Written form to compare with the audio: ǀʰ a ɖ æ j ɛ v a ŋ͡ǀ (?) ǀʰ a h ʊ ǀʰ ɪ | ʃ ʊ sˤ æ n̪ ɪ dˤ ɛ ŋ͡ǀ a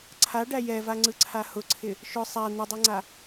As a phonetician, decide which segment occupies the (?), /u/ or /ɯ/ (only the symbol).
ɯ